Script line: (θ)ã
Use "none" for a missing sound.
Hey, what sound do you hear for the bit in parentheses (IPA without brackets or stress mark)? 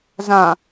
z